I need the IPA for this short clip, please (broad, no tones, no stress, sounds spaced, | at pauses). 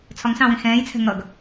t͡sʰ ɒ ŋ s ɑ̃ w ĩ x ɛ̃ː j t͡sʰ ɛ̤ ŋ ʌ ɡ